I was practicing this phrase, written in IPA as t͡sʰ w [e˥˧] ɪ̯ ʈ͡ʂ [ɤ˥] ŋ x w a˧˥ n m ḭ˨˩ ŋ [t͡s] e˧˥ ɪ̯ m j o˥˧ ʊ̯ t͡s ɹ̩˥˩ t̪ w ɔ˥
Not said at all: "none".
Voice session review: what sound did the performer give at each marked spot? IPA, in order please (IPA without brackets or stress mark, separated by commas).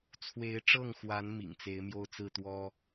e˧˥, ɤ˥˩, t͡s